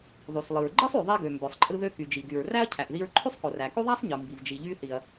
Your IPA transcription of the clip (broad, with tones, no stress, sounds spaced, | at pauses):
ðˤ y˩ s lˠ ɯ˩ ɹ ɡ͡ǃ ɯ˥ sˤ y˩ ðˤ e˧ ɡ ø˩ m b ø˩ sˤ ǃʼ ɯ˧ ð ø˧ k y˩ d͡ʒ i˩ ɡ y˩ ɹ r æ˥ ɐ̯ cʰ æ˩ ʔ ð i˧ ɹ ǃʰ y˥ sˤ k o˩ r æ˩ k y˥ ðˤ æ˥ sˤ ɲ ɯ˩ m b i˩ v d͡ʒ i˩ ʎ y˧ θ i˩ ɐ̯